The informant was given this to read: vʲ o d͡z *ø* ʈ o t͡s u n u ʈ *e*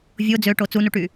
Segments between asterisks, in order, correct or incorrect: correct, incorrect: y

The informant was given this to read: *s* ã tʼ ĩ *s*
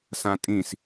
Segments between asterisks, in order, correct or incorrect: correct, correct

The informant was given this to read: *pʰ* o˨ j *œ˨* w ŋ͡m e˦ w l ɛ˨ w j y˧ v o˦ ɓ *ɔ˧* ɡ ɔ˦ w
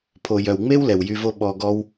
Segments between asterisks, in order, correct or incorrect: correct, correct, correct

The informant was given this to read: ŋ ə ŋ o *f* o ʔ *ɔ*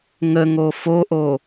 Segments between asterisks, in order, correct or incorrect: correct, incorrect: o

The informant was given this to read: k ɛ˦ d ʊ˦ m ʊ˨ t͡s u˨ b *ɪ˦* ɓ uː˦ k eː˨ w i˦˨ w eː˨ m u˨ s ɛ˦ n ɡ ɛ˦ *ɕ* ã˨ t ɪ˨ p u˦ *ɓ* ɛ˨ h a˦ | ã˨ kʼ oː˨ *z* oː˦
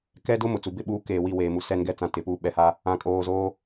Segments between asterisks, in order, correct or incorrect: correct, incorrect: t͡s, correct, correct

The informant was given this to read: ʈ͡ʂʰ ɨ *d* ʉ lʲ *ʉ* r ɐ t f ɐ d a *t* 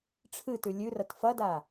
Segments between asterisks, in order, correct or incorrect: incorrect: t, correct, incorrect: none

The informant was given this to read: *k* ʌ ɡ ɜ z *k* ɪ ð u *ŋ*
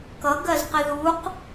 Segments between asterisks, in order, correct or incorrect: correct, incorrect: q, incorrect: q

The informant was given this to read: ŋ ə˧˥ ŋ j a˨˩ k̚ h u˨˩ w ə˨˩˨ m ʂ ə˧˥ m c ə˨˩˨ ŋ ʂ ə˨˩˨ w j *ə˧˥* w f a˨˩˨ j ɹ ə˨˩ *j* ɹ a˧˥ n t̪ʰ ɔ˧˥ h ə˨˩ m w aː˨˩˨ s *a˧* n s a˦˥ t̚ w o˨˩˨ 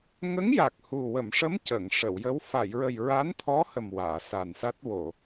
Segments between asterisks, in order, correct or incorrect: correct, correct, incorrect: a˨˩

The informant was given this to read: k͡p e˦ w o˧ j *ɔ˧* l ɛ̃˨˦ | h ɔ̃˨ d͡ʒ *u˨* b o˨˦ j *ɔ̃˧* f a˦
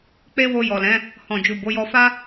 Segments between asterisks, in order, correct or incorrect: incorrect: ɔ˨, correct, incorrect: ɔ˧

